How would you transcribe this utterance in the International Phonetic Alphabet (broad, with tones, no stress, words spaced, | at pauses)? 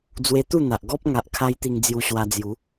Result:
d͡zwe˧t̪u˥˧n̪a˨ʔ ɡɔ˦p̚ ŋa˨ʔkʰa˧jt̪i˧ŋ d͡zju˧ɕwa˧d͡zju˨˦